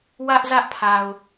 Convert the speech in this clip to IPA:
w ä˦ ʔ z ä˦ ʔ pʰ a˨ ʊ̯

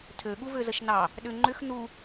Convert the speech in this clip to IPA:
tʰ ø ɠ u v ø z ə ʃ n ɑ | ɗ ʏ ŋ͡ǃ ʏ x n u

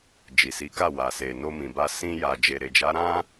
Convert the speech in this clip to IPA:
d͡ʒ i˨ s i˨˦ k a˦˨ w a˨ s e˨ n o˧ m ĩ˨ b a˧ s ĩ˧ j a˨ d͡ʒ e˨ ɾ e˨ d͡ʒ a˨˦ ɾ ã˦

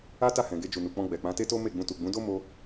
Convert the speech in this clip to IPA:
a˦ t a˦˨ h ɛ̃˨ ɡ e˧ d͡ʒ u˨ n u˨ k͡p ɔ̃˧ ɡ͡b ɛ˨ k͡p ã˨˦ t e˦ t o˦ m e˦˨ ɡ͡b ũ˧ t u˨ ɡ͡b ũ˨˦ d o˦ m o˧

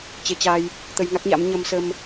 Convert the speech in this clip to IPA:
t͡ɕ e˧ t͡ɕ a˧ j | t̪ ə˧ j ŋ a˦˥ k̚ ɲ a̰˧˥ m ɲ ə˧ m s ə˧ m

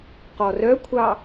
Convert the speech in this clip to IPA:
q ɔ r œ kʷʰ ɑ

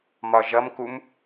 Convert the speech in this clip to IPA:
m ɒ ʒ ʌ m k u m

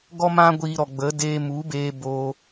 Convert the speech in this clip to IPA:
ɡ ɔ˦ m ã˦ ɡʷ iː˧ ɾ ɔ˨ ɡ͡b ə˨˦ d eː˧ m u˨˦ b eː˧ b oː˧

